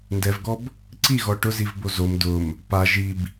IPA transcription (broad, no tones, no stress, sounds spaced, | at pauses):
n d ɛ v ɡ ɔ b | ǀ i ɣ ɔ ʈ ʊ z i v b o z o m d ʊ m | p a ʒ i b